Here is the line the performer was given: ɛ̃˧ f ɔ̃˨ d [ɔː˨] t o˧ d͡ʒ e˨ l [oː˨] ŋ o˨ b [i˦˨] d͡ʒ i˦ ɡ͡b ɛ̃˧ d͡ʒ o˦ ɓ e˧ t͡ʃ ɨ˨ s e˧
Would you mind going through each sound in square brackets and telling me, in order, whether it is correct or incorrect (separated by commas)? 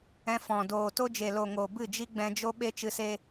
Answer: incorrect, incorrect, incorrect